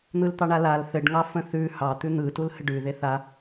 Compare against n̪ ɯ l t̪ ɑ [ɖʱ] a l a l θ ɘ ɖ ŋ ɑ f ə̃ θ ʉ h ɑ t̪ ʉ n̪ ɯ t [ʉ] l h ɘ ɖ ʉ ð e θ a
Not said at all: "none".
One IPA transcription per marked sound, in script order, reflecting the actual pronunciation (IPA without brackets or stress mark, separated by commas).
ɳ, u